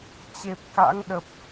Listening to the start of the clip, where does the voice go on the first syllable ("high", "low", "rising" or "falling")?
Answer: low